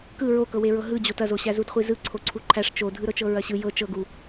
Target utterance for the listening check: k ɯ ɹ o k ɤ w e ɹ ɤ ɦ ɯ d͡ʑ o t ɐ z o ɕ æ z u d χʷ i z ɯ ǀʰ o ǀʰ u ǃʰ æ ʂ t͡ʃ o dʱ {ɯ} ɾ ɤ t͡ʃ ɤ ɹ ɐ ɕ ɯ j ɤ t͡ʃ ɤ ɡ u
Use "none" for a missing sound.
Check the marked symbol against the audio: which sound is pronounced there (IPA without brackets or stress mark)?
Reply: ɯ